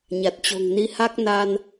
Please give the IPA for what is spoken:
ɲ a˨˩ t̚ t͡ɕ o̤˨˩ ŋ n i˨˦ h a˦˥ k̚ n a˧ n

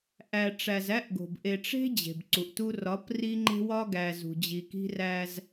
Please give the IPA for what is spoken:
ʔ æ˨ ʈ͡ʂ æ˨ z æ˦ ʔ ɡ o̤˨ b ʔ e˨ ʈ͡ʂ e̤˦ d͡ʑ e̤˨ b ǀ u˨ ʔ t u˦ r ɒ˨˦ p r i˦ ŋ͡ǃ e̤˦ w ɒ˦ ɡ æ˨ z ṳ˨ d͡ʑ i˨ k i̤˦ r æ˦ z

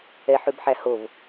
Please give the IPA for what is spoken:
ɛ ħ ʉ b ħ æ h o v

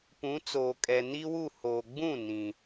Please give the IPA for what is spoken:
p ũ˨˦ t͡s oː˨ kʼ ɛ˨ n i˦ w u˦˨ h oː˨ ɡ͡b ũ˦˨ n ĩ˨

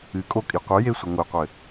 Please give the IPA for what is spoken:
ɨ kʼ o kʼ i qʷ ɨ j e sʷ e ŋʷ e qʷ ɘ

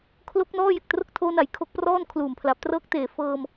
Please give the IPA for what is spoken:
kʰ l o˦˥ k̚ n ɔː˥˩ j e˨˩ k̚ t r o˥˩ k̚ tʰ oː˦˥ n a˨˩ j kʰ o˦˥ k̚ p r ɔː˥˩ n kʰ l uː˨˩ m pʰ l a˨˩ p̚ t r ɤː˥˩ k̚ t eː˨˩ f ɤː˧ m

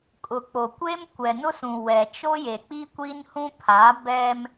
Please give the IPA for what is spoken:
kʼ ʊ˨ k͡p o˨ kʷ e˦ m kʷ ɛ˨ n ʊ˦ s ũ˨ w ɛ˨ t͡ʃ o˦ j e˨ k͡p i˦ kʷ i˦ n h ũ˦ pʰ a˨˦ b ɛ˦ m

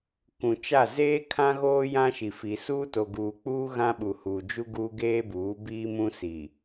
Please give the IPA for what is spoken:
k ũ˨ t͡ʃ a˦˨ z eː˦ kʰ ã˦ ɣ oː˦ j ã˦ ʃ i˨ f i˨ s uː˦ t o˨ ɡ uː˨ k͡p uː˦ ɣ ã˦ ɓ u˨ h uː˨ d͡ʒ u˦ ɡ u˦ ɡ eː˦ b uː˨˦ b iː˦ m ũ˦ s i˨

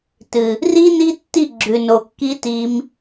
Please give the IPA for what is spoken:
t ɨ˨ | r i˦ n i˦ tː i˦˨ ɡ͡ǁ ʉ˨ n o˨ kː i˧ t i˧ m

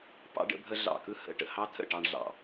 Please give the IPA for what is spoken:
p ɑ̰˥ ɖ ə̰˥ bʱ ə˥ ɮ ɑ̰˧˩ k ɯ˥ h ə̰˧˩ ʈ ə̰˧˩ h ɑ˥ t̪ʰ ə̰˧˩ ʈ ɑ˥ ɳ ɮ ɑ̰˧˩

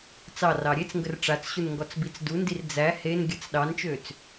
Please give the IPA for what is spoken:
t͡s ɑ r ɑ ɾʲ e t͡s ŋ ɡ ə r ʈ͡ʂ a t͡s ɕ u n ŋ ɡ ɔ t͡s b i t͡s d u n d i r d͡z æ h e n ɡʲ ə t͡s ɗ ɑ n t͡ʃ ø t͡s

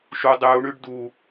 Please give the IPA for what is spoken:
ʃ u dˤ ʉ u̯ ɳ ʉ ɖ d u

